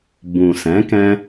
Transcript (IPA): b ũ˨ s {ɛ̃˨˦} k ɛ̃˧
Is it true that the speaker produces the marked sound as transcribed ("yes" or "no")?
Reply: yes